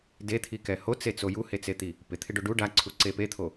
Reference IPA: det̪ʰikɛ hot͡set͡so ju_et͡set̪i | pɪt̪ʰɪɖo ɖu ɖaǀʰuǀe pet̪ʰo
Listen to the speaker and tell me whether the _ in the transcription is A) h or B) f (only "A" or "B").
A